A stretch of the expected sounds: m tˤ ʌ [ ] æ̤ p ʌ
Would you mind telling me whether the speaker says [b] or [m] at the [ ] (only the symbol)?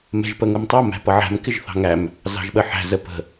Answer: m